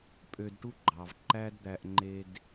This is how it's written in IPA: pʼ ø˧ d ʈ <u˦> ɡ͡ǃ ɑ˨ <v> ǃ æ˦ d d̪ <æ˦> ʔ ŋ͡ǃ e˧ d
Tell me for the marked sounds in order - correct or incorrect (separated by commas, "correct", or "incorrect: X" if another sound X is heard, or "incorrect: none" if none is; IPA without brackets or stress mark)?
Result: correct, correct, incorrect: æ˧